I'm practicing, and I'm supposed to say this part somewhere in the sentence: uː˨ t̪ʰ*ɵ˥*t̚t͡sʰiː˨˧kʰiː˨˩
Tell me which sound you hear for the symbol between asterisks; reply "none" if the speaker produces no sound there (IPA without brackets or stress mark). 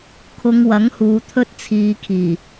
ɵ˥